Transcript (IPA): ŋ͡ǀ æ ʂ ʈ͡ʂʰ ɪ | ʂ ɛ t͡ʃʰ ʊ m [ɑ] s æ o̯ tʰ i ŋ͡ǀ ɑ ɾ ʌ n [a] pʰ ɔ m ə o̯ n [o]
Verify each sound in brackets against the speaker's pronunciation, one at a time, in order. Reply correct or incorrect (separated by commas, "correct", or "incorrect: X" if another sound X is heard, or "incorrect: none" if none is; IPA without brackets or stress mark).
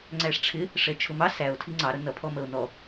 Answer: correct, incorrect: ʌ, incorrect: ɔ